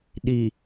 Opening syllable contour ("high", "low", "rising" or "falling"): low